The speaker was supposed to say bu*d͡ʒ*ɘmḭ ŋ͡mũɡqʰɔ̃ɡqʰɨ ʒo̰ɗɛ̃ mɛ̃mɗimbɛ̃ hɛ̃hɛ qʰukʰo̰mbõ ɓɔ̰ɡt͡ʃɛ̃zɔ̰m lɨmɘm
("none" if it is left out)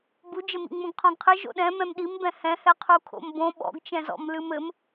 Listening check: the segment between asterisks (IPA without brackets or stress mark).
d͡ʒ